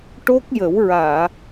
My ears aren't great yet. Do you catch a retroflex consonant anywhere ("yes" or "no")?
yes